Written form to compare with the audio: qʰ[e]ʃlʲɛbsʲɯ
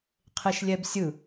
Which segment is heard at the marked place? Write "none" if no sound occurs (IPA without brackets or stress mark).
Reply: e